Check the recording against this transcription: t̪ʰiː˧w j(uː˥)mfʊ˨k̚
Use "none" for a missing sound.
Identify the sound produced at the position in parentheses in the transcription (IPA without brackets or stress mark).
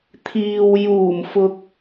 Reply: uː˨˩